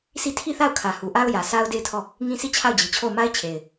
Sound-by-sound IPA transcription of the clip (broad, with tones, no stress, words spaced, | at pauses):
si˦˨ tʰi˦˨θa˦˨ʊ̯ kʰä˨hu˨ʔa˦ʊ̯jä˨ sa˦ʊ̯de˦˨ɪ̯tʰɔ˦˨ | ŋĩ˦sʰi˦˨ t͡ɕʰa˦˨ʊ̯d͡ʑi˨t͡ɕʰo˦˨ʊ̯ ma˦ɪ̯t͡ɕʰe˨ɪ̯